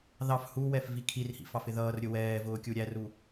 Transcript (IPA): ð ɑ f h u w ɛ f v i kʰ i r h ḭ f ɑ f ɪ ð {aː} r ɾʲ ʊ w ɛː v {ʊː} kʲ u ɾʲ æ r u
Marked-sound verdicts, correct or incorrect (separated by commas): incorrect, correct